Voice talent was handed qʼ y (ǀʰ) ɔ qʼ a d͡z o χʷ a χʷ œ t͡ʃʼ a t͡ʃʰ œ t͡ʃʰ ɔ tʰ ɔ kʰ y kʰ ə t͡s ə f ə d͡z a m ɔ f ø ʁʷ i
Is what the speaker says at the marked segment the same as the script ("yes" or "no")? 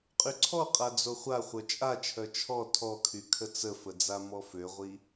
yes